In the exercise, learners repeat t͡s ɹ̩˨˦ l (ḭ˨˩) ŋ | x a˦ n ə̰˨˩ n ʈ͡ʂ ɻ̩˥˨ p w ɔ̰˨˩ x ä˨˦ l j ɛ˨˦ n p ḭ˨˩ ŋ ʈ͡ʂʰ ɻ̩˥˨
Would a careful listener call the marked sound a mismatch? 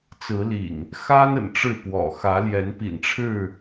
no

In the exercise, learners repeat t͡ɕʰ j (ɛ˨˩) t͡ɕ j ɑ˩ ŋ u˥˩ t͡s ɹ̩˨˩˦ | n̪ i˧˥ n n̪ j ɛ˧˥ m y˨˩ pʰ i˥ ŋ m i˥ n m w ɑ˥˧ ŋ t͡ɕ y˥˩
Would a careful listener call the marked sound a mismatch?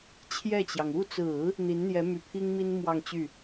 yes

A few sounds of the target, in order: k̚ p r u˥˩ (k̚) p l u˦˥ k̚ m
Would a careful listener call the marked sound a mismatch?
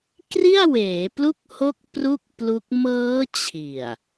no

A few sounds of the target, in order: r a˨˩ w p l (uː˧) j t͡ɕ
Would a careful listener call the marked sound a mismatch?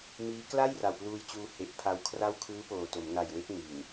no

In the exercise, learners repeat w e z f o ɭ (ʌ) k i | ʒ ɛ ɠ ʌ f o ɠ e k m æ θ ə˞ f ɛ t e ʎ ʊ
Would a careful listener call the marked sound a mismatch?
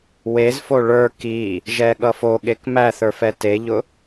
yes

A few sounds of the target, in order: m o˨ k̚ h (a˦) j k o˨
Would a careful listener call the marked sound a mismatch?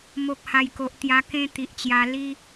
yes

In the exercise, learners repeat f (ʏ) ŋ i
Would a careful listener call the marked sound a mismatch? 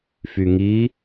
yes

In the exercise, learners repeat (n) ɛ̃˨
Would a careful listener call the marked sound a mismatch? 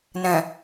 no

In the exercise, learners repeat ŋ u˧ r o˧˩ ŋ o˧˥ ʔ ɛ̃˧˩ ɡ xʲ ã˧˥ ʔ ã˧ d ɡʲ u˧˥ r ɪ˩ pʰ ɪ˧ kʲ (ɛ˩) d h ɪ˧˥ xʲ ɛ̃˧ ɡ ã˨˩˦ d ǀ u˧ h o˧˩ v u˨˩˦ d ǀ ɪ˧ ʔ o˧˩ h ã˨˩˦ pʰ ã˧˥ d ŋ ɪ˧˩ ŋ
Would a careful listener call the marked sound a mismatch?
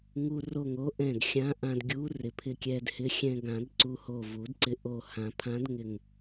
yes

